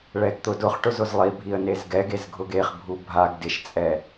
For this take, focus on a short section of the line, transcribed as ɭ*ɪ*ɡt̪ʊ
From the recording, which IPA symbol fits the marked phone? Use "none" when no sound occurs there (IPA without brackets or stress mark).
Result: ɛ